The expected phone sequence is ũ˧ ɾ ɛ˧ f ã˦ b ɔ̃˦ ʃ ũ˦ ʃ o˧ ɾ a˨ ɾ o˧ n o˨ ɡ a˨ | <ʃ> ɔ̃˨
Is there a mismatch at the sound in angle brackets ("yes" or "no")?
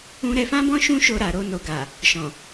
no